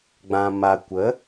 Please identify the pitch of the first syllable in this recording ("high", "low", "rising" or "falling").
low